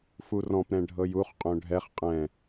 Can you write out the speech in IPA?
f u r ɔ̃ p ɾ ɛ̃ ɖʱ ɤ j u χ qʼ õ ɖʱ ɛ χ qʼ ɛ̃

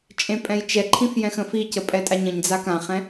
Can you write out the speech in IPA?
t͡ʃʼ ẽ pʼ ɛ̃ j t͡ʃ ɛ ǃʰ ĩ f j ɛ̃ x ə̃ f i c ə pʼ ɛ tʼ a ɲ ə̃ ɲ d͡z a k ã χ ɛ̃

